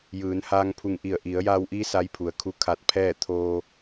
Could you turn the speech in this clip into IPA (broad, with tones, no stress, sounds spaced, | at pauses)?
j ɯː˩˧ n h aː˧ ŋ pʰ u˧˩ ŋ ʔ i˧˩ ə̯ ʔ i˩˧ ə̯ j aː˧ w ʔ iː˧˥ s a˧˥ j pʰ u˩ ə̯ kʰ u˧˥ kʰ a˧ t̚ pʰ ɛː˥˨ t̪ʰ oː˧